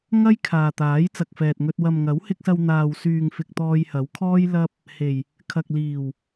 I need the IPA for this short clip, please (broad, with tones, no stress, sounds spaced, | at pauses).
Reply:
ŋ ɐ˥ j kʰ aː˨ t̪ aː˨˥ j t͡s ɐ˨ k̚ f ɛː˨ t̚ ŋ ɵ˧ t̚ w ɐ˨ m ŋ ɐ˨˥ w h ɪ˧ k̚ s ɐ˧ w n̪ aː˨ w s yː˨ ŋ f ɪ˨ k̚ t̪ ɔː˧ j h ɐ˨˥ w kʰ ɔː˥ j l ɐ˥ p̚ | h e˨˩ j | kʰ ɐ˨ k̚ l iː˨˩ w